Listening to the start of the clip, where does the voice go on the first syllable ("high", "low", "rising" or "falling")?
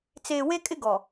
low